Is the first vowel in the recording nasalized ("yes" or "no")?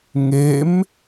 no